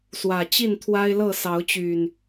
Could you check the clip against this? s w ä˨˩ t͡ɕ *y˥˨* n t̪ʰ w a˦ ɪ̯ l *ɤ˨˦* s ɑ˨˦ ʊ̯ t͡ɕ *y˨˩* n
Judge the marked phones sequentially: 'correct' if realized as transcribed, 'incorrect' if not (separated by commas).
incorrect, incorrect, correct